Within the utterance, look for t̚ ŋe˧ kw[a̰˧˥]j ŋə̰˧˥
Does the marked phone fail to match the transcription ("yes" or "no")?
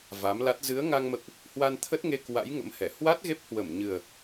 no